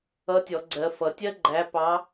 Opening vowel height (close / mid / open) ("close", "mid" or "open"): mid